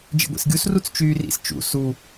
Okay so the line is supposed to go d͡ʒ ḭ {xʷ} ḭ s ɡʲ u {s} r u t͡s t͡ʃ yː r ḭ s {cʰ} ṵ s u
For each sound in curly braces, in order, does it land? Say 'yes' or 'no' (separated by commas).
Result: no, yes, no